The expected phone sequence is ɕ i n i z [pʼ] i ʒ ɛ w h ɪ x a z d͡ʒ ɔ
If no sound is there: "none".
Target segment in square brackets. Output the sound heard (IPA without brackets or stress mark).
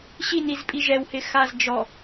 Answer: pʼ